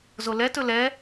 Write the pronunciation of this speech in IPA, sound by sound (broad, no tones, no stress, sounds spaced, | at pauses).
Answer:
z o l ɛ t ɵ l ɛ